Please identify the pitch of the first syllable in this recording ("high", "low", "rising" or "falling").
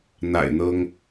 low